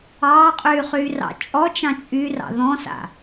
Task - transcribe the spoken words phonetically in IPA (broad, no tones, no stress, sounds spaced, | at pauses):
ɑː qʼ yː χ yː r ɑ̰ t͡ʃʼ ɔ t͡ʃ ɑ̃ t͡ʃʼ y r ɑ̰ ð ɔ̃ s a̰